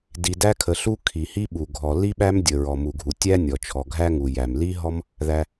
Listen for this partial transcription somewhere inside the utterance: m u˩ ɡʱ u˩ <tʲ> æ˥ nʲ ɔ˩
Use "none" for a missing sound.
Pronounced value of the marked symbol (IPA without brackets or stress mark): tʲ